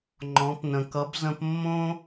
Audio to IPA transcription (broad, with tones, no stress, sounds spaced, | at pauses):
ŋ͡ǃ ɔ̃˩˧ p n ə̃˩ k ʌ˩˧ b z ə̃˧ p mː õ˥